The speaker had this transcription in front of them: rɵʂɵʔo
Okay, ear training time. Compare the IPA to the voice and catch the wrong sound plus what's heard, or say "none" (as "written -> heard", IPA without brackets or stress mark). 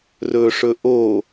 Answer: none